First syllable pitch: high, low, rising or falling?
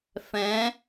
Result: rising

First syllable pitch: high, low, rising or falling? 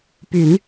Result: low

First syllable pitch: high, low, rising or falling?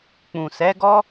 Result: low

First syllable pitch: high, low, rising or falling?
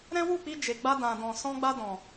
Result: high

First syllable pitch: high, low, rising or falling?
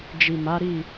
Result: low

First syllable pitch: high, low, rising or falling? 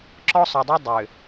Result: high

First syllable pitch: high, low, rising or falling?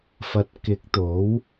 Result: rising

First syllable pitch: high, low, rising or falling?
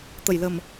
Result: low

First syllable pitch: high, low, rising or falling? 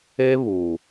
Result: high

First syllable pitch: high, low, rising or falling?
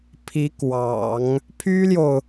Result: rising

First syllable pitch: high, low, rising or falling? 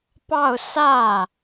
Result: falling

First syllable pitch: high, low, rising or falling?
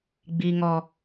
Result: low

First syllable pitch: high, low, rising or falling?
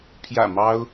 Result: low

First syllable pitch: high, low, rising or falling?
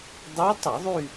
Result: rising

